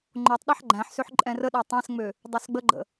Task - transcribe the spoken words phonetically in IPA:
ŋ͡ǃ o tˤ ɗ a ħ ɡ͡ǃ æ̃ ħ s ø ħ ǃʼ ɛ̃ r ə ɗ æ tˤ æ̃ s ŋ͡m ø | dˤ ø s ɡ͡b ə ɡ͡ǃ ə̰

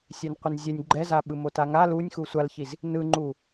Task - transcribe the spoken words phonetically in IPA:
sʲ ɛ n qʷ i n zʲ ɛ nʲ ɡ͡ǃ ɛ z a ɓ ɯ m o t a ŋ a l u nʲ x u sʷ a l ç i z | n ɯ ŋ͡ǃ u

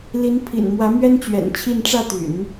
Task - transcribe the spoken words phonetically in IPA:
l i˧˥ n pʰ ḭ˨˩ n m w ä˧˥ m ɥ ɛ˥ n t͡ɕ ɥ ɛ̰˨˩ n t͡ɕʰ i˥˧ n ʈ͡ʂ ä˥˩ t̪ y̰˨˩˦ n

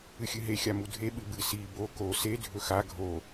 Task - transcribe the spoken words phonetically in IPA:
ɨ xʲ ɨ ɦ e xʲ a m u dʱ e ɓ ɨ b ɨ s i b o k o s e dʱ ɵ x a ɡʱ o

